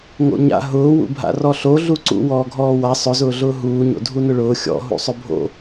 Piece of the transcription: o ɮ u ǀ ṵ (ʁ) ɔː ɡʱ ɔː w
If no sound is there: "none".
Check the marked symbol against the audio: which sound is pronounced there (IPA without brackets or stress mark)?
w